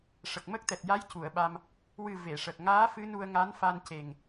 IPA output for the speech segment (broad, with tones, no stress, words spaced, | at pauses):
ʂə˨˩k̚mə˦˥k̚t̪ɛ˨˩t̚ ja˧˥j cu˨˩˨ə̯ɓa˧m | wɨ˨˩ ve˨˩˨ʂə˨˩k̚ ŋaː˧˥ fɨ˧˥nu˧ə̯ ŋa˧˥n fa˧nce˨˩ŋ